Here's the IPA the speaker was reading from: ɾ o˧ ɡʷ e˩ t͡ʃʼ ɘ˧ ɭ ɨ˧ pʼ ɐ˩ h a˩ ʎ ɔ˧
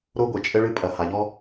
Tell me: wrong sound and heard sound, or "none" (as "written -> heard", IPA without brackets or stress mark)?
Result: none